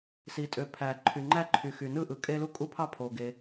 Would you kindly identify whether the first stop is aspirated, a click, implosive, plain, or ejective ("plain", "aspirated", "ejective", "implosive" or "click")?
ejective